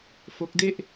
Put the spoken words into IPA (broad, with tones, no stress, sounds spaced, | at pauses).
f o˦˥ k̚ d e˥˩ ʔ